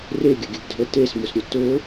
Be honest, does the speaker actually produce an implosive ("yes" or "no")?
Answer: no